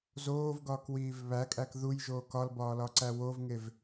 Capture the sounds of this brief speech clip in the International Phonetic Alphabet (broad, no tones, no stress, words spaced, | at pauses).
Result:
zoːvɡɒːkwiːv βækʼæk ðujʒoː kɒlbɒːlɒǀæ wovŋev